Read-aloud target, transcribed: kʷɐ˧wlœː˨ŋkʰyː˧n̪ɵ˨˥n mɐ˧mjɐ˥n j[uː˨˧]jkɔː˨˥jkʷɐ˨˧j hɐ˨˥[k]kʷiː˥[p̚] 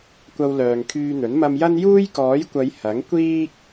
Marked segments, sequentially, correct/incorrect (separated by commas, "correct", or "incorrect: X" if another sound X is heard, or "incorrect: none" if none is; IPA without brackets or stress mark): incorrect: uː˥, incorrect: ŋ, incorrect: k̚